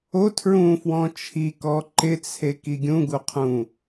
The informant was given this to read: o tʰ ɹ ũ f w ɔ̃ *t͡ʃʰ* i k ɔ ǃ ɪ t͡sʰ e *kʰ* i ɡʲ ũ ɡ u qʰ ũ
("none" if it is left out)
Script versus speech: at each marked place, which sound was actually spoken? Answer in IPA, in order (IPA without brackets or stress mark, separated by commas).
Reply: t͡ʃʰ, k